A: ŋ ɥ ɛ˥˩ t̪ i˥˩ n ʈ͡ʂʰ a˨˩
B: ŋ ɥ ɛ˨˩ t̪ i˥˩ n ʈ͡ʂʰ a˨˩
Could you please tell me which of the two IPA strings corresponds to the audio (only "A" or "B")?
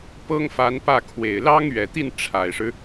B